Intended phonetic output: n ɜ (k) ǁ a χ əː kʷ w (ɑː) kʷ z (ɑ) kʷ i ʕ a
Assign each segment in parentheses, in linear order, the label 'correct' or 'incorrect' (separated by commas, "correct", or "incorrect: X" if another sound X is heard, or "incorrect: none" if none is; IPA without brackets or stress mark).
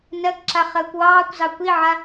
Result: correct, correct, correct